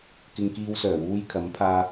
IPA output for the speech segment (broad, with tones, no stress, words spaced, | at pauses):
kɪ˧ŋkiː˧wsœː˨˩wuː˧j kʰɐ˨˥mpʰaː˧